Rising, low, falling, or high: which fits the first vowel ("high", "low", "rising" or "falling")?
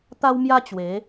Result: high